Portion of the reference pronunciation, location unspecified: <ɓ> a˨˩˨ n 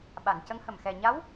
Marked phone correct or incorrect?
correct